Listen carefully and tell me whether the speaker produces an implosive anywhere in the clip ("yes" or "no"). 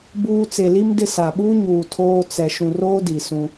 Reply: yes